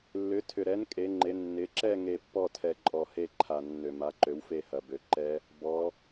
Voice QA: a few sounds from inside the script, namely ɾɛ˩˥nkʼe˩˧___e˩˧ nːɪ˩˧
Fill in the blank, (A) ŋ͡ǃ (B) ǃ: A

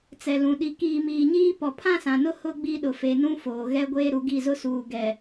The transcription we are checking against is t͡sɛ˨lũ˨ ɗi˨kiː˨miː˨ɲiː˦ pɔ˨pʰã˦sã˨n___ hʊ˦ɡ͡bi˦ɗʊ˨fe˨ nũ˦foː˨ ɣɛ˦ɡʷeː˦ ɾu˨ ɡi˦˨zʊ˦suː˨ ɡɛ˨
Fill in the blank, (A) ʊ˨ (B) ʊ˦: B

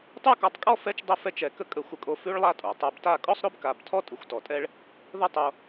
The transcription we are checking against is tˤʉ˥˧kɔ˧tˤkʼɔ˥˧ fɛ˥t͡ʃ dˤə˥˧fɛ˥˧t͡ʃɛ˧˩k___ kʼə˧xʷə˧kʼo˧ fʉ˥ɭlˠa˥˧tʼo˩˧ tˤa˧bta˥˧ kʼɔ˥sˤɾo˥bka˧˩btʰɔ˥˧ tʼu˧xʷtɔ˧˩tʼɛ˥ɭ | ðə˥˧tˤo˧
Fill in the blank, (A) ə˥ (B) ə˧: A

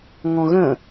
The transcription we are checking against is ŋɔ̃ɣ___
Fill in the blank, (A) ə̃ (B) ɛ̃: A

